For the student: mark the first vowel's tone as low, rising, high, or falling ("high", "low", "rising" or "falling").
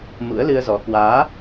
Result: rising